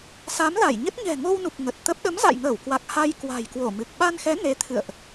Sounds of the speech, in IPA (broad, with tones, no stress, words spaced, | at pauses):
sa˨˦mla˧˩jɲə˦˥t̚ ɲɛ̤˨˩ŋo˧wnu˨˩k̚ ŋə˨˩t̚t̪ə˦˥p̚ ɗə˨˦mza̰˧˨jŋəː˧˩wkwa˨˩k̚ ha˧jkwa̤˨˩jkwo˧˩ mɨ˨˩k̚ ɓa˧nxɛ˨˦ ne˨˦t̪ʰɨ̰˧˨ə̯ʔ